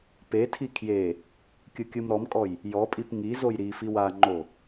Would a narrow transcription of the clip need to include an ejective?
yes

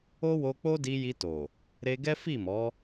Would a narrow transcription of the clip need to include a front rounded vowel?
no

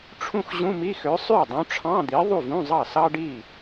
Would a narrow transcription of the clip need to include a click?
no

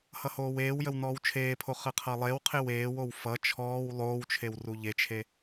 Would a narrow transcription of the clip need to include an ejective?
no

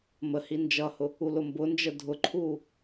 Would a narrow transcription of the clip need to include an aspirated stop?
yes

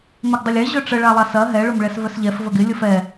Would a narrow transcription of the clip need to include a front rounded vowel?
yes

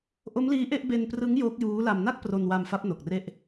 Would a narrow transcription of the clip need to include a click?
no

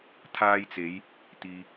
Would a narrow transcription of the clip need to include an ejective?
no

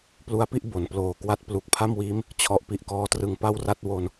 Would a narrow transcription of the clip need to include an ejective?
no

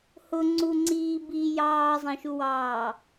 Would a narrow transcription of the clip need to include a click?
yes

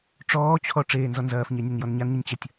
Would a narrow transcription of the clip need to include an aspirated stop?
yes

